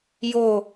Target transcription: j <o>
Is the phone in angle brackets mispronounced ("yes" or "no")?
no